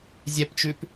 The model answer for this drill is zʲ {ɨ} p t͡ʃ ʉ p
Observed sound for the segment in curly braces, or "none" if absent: ɛ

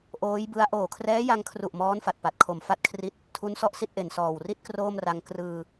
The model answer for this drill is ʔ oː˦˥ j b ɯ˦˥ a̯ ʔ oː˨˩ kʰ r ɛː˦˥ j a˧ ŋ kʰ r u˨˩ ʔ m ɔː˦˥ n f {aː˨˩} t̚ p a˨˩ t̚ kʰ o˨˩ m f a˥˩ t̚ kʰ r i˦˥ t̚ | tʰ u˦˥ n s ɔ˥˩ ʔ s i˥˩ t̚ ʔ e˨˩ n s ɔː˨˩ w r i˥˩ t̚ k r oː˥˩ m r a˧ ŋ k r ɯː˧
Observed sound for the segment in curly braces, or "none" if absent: a˨˩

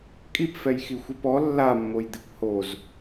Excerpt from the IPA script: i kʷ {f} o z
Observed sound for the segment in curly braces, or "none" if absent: h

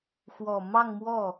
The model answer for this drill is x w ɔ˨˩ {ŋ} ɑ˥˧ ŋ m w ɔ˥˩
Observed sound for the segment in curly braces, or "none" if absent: m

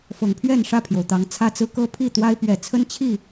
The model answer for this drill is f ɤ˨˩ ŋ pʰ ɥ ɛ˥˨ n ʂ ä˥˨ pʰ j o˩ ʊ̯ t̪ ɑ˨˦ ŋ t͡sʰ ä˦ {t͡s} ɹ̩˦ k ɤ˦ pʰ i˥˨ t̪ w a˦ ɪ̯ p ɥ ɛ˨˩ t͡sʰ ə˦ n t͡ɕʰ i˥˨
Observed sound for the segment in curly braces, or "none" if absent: t͡s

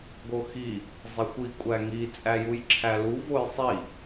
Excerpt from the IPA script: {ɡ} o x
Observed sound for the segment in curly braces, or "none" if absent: ɡ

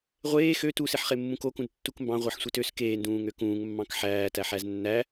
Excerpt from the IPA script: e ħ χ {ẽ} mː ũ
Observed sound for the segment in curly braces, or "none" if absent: e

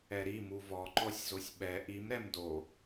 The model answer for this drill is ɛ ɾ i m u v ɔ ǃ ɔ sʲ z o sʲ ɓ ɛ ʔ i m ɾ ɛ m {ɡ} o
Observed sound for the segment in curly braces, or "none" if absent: d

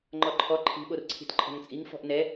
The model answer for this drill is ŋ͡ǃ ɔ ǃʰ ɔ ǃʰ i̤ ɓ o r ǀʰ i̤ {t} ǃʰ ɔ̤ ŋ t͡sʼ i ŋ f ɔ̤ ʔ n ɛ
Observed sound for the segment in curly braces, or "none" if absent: t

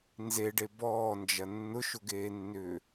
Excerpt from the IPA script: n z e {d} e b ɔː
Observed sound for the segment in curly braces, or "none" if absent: ɖ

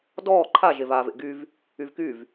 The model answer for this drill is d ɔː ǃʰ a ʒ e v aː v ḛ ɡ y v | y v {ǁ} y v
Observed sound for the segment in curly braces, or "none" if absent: k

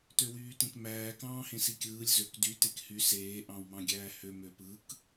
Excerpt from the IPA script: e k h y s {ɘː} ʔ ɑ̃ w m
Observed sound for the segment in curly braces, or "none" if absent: eː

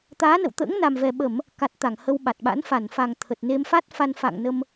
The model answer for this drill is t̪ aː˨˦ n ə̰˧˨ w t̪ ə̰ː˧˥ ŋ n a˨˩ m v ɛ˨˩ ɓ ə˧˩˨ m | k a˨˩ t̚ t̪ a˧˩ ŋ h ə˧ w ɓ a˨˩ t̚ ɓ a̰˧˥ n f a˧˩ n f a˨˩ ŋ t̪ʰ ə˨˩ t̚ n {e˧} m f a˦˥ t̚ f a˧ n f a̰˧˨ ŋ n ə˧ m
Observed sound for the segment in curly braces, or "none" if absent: e˧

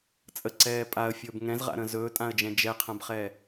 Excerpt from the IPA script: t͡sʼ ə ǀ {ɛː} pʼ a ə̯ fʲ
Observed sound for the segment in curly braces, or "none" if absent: ɛː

